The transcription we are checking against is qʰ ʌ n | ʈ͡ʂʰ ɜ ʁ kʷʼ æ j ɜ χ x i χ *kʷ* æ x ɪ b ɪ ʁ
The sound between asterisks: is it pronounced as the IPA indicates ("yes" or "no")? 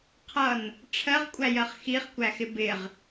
yes